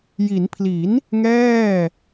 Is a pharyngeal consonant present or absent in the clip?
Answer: absent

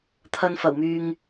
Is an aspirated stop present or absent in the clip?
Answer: present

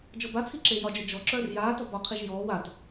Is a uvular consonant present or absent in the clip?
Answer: present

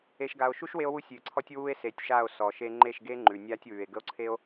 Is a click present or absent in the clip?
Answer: present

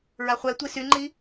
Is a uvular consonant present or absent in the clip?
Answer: present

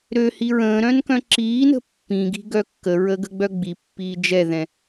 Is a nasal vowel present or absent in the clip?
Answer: present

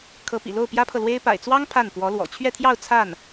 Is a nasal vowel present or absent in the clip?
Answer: absent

